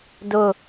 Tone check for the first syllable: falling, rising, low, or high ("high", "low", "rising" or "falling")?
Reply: falling